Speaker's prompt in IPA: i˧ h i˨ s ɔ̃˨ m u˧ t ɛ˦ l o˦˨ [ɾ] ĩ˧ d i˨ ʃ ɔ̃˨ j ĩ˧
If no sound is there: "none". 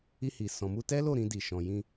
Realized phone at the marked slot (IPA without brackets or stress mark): ɾ